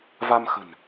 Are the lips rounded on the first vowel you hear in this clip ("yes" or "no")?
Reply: no